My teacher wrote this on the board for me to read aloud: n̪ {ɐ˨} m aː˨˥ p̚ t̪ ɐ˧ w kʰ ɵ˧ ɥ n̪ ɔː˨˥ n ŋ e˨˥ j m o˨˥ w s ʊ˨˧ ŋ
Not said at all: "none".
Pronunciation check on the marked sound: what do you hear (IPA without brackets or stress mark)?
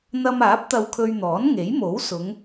ɐ˧